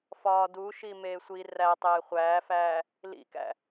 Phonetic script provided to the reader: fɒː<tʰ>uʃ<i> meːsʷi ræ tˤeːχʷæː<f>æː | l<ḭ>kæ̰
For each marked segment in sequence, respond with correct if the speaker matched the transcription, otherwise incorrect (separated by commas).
incorrect, correct, correct, correct